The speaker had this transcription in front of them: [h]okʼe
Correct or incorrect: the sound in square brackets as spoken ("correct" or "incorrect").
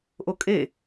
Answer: incorrect